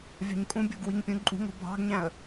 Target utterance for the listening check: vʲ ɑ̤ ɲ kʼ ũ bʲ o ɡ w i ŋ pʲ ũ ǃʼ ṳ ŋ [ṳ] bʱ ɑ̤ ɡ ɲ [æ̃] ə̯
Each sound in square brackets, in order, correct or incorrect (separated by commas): incorrect, correct